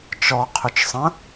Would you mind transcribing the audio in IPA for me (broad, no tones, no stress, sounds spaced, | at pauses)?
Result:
t͡ʃ ɔ qʰ ʏ t͡ʃ sˤ ə̃